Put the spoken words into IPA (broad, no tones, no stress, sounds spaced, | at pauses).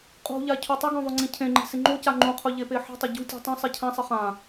qʼ ṳ ʎ a cʰ u tˤ ɪ ɡ ɔ̃ ðˤ o ŋ͡ǀ ĩ cʰ ẽ ŋ͡ǃ i̤ s ɪ ŋ͡ǃ o c a ŋ͡ǃ ũ qʰ ʊ ʎ e p e ħ i̤ tˤ ɪ ɟ ṳ tʲ ṳ tˤ õ sˤ i cʰ ã sˤ ɪ χ ã